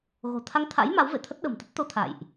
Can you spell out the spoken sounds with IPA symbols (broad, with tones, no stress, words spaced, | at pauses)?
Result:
ɣo̤˨˩ t̪ʰa˧ŋt̪ʰa̰˧˥j ma˨˦wvḛ˧˨t̪ʰə˦˥t̚ ɗə̤˨˩mt̪ə˦˥t̚t̪o˧t̪ʰa̰˧˨jʔ